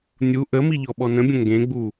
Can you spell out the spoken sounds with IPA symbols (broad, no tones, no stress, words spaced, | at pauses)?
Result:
nʲu ʔəmi ʎɔɓɔnə̃bʲə̃ ŋɡẽɡ͡bu